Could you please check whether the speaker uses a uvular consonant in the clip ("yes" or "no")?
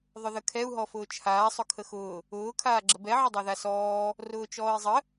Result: no